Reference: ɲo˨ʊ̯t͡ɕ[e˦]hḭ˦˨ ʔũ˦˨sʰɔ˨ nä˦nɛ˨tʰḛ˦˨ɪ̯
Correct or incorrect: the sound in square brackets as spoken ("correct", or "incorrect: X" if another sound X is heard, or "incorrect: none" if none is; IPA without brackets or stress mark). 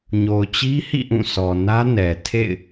incorrect: i˦